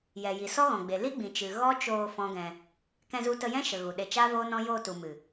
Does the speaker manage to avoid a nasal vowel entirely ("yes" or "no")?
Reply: no